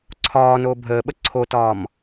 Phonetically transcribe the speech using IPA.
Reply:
ǀʰ ɒː n oː bʱ əː ɓ ə ǀʰ o t ɒː m

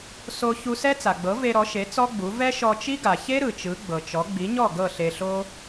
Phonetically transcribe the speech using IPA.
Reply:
s o˧ ç u˧ s ɛ˥ t͡s a˩ ɡ͡b ɤ˩˥ v e˧ ɾ ɔ˩˥ ʃ e˩˥ t͡s ɔ˥ ɡ͡b u˩˥ v ɛ˥ ʃ ɔ˧ t͡ʃ i˥ ɡ a˩ ç e˥ ɾ ɯ˩ t͡ʃ ɯ˩˥ ɡ͡b ɤ˩ t͡ʃ ɔ˩˥ ɡ͡b i˩˥ ɲ ɔ˥˩ ɡ ɤ˥˩ ɬ e˧ ɬ o˥

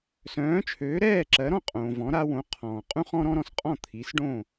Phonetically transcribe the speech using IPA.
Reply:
s œ̃ː˩˥ t͡ʃʰ øː˩˥ ɾ ɛː˥˩ ǁ ɜ˩˥ ɾ ɔ̃˥˩ qʼ õː˩ v ɔ̃˩˥ ɾ a˧ w õ˩˥ qʰ ɔ̃ː˩ qʼ ũ˥ χ ɔ̃˥ ɾ ɔ̃˥ ɾ ɔ̃˧ s qʼ ɔ̃˥˩ t̪ʰ i˩˥ s ɖ õ˥˩

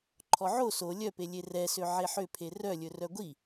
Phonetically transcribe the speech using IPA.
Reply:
ǃʰ ɔ ʕ o s o lʲ œ p e lʲ e r ɛ s ø ʕ e ħ ø pʰ e r œ lʲ ɵ r œ ɡʷ i

